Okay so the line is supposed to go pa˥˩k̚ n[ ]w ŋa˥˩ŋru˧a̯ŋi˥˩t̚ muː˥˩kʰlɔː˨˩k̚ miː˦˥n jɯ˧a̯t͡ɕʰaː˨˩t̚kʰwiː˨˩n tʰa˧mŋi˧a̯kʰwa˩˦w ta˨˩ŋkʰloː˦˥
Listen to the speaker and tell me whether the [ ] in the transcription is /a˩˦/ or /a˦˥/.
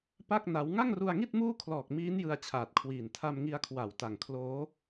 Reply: a˦˥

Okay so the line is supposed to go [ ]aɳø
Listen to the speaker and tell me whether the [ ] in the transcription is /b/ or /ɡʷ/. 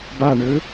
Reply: b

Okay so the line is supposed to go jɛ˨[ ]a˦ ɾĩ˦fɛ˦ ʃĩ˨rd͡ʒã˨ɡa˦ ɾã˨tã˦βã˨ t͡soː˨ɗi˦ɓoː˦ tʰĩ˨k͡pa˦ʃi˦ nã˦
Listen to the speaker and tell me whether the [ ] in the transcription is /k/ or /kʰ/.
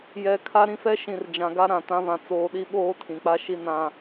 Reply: kʰ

